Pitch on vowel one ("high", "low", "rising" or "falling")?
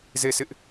falling